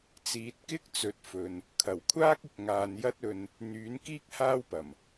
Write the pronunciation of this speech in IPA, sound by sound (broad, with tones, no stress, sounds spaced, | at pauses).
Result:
t͡s iː˨ t̚ k ɪ˥ k̚ t͡s ɵ˨˥ t̚ f ɵ˨ n | kʰ ɐ˨˩ w kʷʰ aː˥ k̚ ɪ˨ k̚ ŋ aː˨ n j ɐ˥ t̚ ɵ˧ n | n̪ yː˨˥ n k iː˥ k̚ h aː˥ w p ɐ˨˩ m